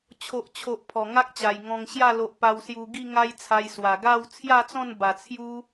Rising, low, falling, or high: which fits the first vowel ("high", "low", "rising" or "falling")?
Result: low